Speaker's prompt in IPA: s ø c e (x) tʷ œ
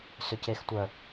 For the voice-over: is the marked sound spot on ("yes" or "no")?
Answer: yes